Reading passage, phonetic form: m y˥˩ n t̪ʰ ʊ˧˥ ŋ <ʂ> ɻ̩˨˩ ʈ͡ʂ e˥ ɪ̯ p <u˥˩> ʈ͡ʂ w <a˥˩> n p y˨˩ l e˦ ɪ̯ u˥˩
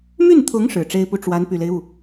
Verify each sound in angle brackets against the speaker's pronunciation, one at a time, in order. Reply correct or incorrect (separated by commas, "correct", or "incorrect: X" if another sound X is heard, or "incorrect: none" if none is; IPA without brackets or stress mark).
correct, correct, incorrect: a˧˥